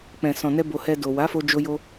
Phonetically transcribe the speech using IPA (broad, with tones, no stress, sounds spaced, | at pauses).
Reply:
k͡p ɛ̃˨ s ɔ̃˨ n ɛ˧ b o˧ h ɛ˧ d o˨ w a˨˦ f o˧ d͡ʒ o˧ j o˧